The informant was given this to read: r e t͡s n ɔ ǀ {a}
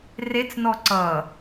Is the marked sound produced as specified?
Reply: no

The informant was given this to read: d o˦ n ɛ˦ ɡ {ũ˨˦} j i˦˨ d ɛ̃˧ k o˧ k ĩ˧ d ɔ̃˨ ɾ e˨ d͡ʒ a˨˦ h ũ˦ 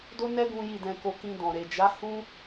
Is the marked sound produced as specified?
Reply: no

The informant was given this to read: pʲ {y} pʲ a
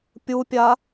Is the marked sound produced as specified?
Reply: no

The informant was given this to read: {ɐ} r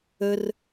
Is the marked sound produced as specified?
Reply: no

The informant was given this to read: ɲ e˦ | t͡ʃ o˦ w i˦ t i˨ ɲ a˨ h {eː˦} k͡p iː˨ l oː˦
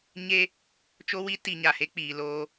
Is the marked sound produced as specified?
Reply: no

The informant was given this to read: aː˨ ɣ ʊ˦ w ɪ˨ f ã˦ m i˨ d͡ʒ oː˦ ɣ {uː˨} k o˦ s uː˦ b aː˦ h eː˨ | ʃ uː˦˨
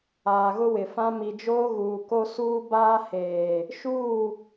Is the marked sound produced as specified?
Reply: yes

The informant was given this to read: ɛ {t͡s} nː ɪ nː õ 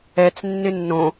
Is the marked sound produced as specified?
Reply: yes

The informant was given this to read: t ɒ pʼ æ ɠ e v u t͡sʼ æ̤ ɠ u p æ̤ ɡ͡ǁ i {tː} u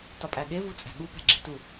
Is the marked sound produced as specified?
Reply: no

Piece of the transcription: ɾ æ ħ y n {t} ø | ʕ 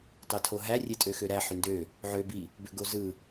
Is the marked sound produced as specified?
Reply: no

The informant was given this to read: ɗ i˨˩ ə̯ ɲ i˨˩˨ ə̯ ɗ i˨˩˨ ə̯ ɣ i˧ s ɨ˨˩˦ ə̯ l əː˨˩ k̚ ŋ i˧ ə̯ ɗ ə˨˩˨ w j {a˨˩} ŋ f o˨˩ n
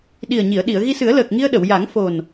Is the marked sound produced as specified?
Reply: no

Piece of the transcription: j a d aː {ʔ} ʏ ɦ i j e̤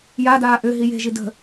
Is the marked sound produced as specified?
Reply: yes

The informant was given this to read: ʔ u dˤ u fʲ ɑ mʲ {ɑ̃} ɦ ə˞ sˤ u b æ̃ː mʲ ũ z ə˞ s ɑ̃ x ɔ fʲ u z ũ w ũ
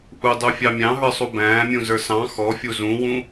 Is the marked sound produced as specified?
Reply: yes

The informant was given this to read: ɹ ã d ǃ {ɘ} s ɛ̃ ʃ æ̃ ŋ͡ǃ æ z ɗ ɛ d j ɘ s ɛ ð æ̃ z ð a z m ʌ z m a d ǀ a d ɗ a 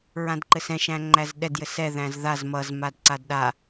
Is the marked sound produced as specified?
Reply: yes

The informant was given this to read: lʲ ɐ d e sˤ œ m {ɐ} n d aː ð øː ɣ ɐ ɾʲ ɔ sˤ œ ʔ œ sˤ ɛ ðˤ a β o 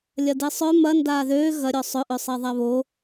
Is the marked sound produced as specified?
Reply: yes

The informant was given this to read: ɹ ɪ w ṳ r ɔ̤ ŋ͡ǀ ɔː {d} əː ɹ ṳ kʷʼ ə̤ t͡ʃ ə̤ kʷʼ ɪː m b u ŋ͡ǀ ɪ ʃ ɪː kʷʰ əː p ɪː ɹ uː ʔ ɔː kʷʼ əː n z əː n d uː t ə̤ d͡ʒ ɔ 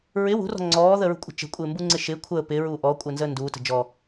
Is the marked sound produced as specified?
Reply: no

